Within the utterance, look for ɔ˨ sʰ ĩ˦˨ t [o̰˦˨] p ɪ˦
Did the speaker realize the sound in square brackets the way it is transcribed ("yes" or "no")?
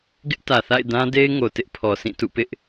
no